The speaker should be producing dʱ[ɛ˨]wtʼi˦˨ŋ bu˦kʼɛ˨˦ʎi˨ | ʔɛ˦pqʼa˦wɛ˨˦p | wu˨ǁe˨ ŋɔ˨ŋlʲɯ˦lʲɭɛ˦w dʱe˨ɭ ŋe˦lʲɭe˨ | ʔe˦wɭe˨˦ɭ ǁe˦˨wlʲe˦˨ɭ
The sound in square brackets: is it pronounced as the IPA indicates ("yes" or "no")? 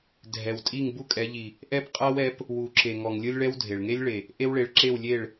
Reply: yes